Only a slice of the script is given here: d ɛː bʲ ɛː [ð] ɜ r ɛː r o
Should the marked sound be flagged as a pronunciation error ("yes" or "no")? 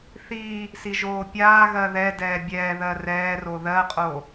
no